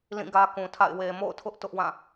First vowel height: high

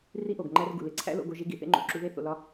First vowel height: high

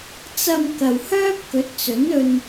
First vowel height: low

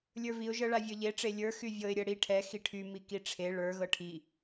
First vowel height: mid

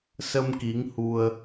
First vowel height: mid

